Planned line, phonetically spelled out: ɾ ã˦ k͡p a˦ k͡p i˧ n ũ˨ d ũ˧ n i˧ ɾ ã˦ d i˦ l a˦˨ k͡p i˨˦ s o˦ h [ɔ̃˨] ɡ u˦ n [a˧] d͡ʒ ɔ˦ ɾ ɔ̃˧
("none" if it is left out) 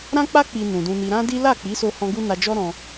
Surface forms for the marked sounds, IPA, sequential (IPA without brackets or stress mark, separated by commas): ɔ̃˦, a˧